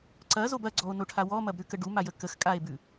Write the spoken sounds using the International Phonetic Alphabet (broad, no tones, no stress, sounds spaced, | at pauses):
ǀ ɐ z o b ɐ ɡ͡ǀ ɔ o̯ n o ʈʰ a w ɔ m ɐ b ɾ ʉ k ə ɖ u m a j ə k ə x kʼ a e̯ b ʉ